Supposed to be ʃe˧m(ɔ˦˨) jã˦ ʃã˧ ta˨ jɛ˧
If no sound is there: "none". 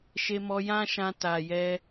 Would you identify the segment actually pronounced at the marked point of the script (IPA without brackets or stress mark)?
ɔ˧